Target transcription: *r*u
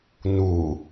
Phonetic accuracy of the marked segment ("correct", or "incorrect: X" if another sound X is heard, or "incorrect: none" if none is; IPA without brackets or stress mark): incorrect: n